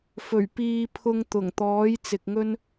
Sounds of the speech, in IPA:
fɵ˨˩ɥpiː˧ pʰʊ˧ŋt̪ʊ˨˩ŋt̪ɔː˨˥j t͡sɪ˧k̚ŋɵ˥n

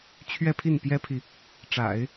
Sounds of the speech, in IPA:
t͡ɕʰɥɛ˥˧pʰi˥˩npjɛ˥pʰi˨ | ʈ͡ʂa̰˨˩˦ɪ̯

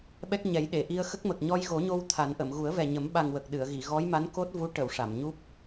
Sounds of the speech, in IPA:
ɓɛ˦˥k̚ɲɛ˨˩˦jɗe˨˩˨ ʔi˧ə̯xə˦˥k̚mə˨˩k̚ ɲɔ˧jɣo˨˩˦ɲo˧w t̪ʰa˨˩˦nʔə˨˩˨m ɣu˨˩˦ə̯vɛ˨˩ɲə˨˩˦m ɓa˨˩ŋwə˨˩k̚ ɗɨ˨˩˨ə̯ɣi˨˩˨ ɣɔ˧˥jma˧˥n ko˦˥t̚vu˧˥ ʈə˨˩˨w ʂa˨˩˨mɲu˦˥p̚

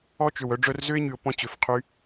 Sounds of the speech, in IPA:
ɔ˦t͡ʃø˨w œ˧ɖ͡ʐœ˧r zø˦ɪ̯ɲy˨ʊ̯ pɔ̃˧t͡ɕø˨fqʰy˧

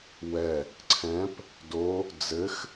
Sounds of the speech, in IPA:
wɛ | ǀʰɛ̃p | do | d͡zɘx

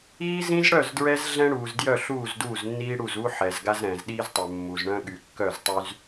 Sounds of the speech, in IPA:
iː˦zĩ˦z ɽœ˦˨zdɹɛ˦z ɮɛ̃˦ɽuː˨zdjœ˦˨ ɬuː˦˨zduː˦˨znːiː˦ ɽu˦˨z u˦ ħɛ˨z ɡa˦zɾɛ̃ː˨zɗiː˦ztˤɛ˨ mːu˨zɳœ̃˦ ɠy˨kːœ˦˨ztˤy˦z

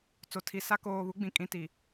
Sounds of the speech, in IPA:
t͡so˨tʰi˨sa˦ koː˨βu˨˦ɡ͡bĩ˨kʼĩ˨ ti˨

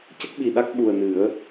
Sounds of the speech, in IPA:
cə˦˥k̚ɓi˨˩ɗa˦˥k̚ ɓu˨˩ə̯nɨ˨˩˦ə̯

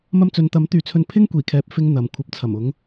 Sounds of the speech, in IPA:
mɐ˧mt͡sɵ˨nt̪ɐ˨˥m t̪yː˨˧t͡sʰɵ˧n pʰɪ˥ŋ kʷiː˨˩kʰɛː˨p̚ fɪ˧ŋ n̪ɐ˨mkʷʰɐ˨˥p̚ t͡sʰɐ˨˩mʊ˨˧ŋ

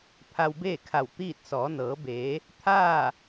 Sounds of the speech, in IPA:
pʰa˧wbeː˥˨kʰa˧˩w t̪iː˥˨t̚ sɔː˩˧nɤː˩˧beː˩˧ | t̪ʰaː˥˨

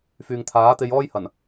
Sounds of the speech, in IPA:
fyː˨ŋt̪ʰaː˨˥t̪e˧j ɔː˥jhɐ˨˩n

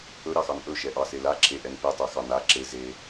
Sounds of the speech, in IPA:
ɵɾɑxɑn ʔɵʃɛʔɑse laǁʰeʔɛn petˤɛxɑ na ǁe ze

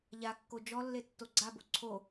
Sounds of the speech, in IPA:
ʎakːo d͡ʒɔlːe tːoɡ͡ǀabo ǀʰo

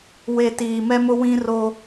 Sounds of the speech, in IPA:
we˨ tiː˨mɛ˦mʊ˦ wĩ˦ro˦

